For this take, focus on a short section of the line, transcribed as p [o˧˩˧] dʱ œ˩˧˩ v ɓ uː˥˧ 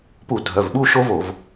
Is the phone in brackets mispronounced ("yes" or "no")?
yes